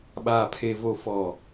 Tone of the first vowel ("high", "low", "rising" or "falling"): low